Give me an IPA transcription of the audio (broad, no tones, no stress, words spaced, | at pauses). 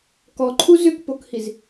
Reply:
kɔǃʰu zʏkpokhiz